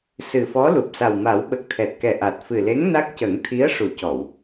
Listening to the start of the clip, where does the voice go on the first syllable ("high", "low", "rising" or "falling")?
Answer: low